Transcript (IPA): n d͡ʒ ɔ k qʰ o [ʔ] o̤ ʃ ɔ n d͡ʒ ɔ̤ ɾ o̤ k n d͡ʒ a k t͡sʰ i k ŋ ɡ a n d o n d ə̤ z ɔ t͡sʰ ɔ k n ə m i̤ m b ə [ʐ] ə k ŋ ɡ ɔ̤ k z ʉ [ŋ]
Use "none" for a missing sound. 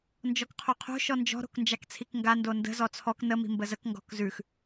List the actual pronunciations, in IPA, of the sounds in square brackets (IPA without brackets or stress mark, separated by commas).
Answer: qʰ, z, x